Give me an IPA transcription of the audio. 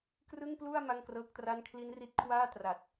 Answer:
k r ɯ˥˩ ŋ p l u˥˩ a̯ m a˥˩ ŋ k r ɤː˦˥ k̚ t r a˥˩ n kʰ l i˦˥ n r i˦˥ t̚ kʰ w aː˥˩ t r a˨˩ t̚

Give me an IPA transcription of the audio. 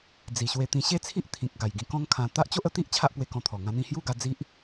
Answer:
d͡z i˨˩ ɕ w e˧ t̪ ĩ˧ ɕ e˥˧ t͡sʰ i˦ ʔ t̪ʰ ĩ˨ k̚ ɡ a˨˩ j ɡ ĩ˧ k ɔ̃˦ ŋ kʰ ã˧ t̪ a˦ ʔ t͡ɕ o˦ ʔ ə˧ t̪ i˦ ʔ t͡ɕʰ a˦ ʔ p w e˧ k ɔ̃˧ t̪ʰ ɔ˨˩ ŋ ã˧ n̪ ĩ˧ h j u˥˧ ɡ a˧ d͡z i˦ ʔ

